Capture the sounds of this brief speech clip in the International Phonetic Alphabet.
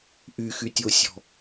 ʔyxytʲosʲɔ̤

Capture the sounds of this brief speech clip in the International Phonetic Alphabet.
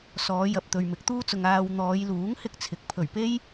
sɔː˨˧jɐ˨p̚ t̪ɵ˨ɥmɪ˨˥k̚t̪uː˥t͡sʊ˨ŋ aː˨w n̪ɔː˨˧jluː˨˥ŋ hɪ˥k̚t͡sʰɪ˨˥k̚ pʰɵ˨˩ɥpe˥j

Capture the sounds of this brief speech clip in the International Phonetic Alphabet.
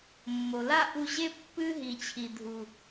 mːo˨la˦ʔu˧ʑe˦ pːɨ˦ ɦi˨t͡ɕʰi˨dʱu˨

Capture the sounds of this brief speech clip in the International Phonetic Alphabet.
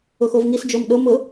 ʊxovŋisd͡ʒom ɗomʊ

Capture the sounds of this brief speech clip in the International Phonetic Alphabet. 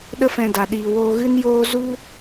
ɗə˦fɛ̃˧da˨ ɗiː˨woː˧ɣɨ˦njoː˦ zu˦

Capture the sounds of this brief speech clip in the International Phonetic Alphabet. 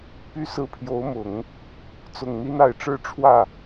py˥sɹ̩˥ pʰjo˧˥ʊ̯mʊ˨˩˦ŋ | t͡sʊ˨˩ŋn̪i˥na˨˩ɪ̯ ʈ͡ʂɻ̩˥ʈ͡ʂʰwä˥˩

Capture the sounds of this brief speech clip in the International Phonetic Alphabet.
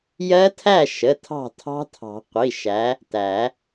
jɜ˦˥tʰæ˥˨ʃə˩˧˩ tʰɑ̤˥˨tʰɑ̤˦˥tʰɑ̤˨˩˦ qʷi˩˧˩ʃæ˨˦ | tæ˨˩˦

